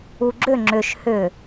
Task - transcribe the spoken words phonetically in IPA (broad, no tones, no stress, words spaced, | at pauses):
uɡ͡ǁʏ ŋ͡ǁʏʃ hʏ